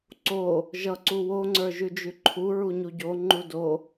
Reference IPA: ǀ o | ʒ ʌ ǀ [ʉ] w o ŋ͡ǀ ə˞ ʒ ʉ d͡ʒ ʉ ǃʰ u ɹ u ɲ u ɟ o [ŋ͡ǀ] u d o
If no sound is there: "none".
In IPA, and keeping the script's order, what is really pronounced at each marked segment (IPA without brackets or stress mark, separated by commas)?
u, ŋ͡ǃ